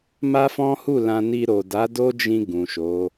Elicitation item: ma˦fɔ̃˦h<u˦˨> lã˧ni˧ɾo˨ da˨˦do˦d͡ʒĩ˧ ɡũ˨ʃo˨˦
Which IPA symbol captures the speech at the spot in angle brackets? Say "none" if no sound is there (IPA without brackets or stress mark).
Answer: u˦˨